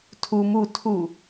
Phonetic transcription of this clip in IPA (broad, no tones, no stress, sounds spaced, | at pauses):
tʰ u m u tʰ u